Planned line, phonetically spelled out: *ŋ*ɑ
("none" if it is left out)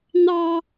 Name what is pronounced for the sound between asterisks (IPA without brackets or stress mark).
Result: n̪